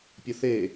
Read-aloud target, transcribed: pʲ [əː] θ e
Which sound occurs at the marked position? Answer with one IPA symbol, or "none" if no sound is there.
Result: ə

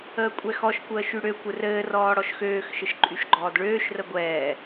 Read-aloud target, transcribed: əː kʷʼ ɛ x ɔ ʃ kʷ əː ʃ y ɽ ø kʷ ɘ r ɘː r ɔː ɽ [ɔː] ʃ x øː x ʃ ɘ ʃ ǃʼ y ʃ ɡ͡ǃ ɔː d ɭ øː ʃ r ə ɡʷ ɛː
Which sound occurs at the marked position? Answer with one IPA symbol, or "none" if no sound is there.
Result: ɔ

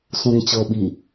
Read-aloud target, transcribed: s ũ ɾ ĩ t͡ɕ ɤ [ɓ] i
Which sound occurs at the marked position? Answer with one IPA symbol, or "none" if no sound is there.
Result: ɓ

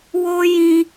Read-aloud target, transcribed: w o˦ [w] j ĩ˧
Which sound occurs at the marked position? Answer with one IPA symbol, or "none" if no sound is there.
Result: none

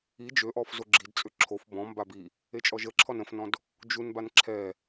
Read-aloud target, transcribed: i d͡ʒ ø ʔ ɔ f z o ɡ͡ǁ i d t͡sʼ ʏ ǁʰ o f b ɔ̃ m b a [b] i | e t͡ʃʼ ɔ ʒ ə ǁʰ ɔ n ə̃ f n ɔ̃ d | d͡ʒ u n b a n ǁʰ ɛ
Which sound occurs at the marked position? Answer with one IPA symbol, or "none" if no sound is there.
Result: b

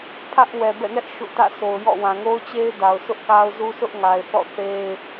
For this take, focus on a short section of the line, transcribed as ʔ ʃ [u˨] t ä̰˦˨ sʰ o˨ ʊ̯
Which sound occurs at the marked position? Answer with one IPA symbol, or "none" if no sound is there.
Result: ṵ˦˨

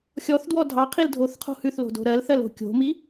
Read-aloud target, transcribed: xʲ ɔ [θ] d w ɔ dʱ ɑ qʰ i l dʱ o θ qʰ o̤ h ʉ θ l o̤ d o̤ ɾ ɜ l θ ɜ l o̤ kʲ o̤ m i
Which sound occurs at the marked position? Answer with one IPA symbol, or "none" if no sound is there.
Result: θ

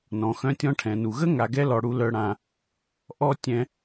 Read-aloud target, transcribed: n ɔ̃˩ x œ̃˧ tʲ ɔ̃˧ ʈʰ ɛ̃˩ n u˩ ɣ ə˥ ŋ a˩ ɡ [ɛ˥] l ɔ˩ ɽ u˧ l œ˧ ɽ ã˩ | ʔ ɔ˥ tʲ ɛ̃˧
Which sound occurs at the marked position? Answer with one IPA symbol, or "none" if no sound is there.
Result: ɛ˥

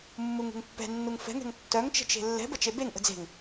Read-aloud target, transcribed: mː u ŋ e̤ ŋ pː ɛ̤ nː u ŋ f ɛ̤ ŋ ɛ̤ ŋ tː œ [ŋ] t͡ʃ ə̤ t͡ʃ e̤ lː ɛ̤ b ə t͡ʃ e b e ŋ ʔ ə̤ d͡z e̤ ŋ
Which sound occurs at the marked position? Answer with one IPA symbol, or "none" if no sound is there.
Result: ŋ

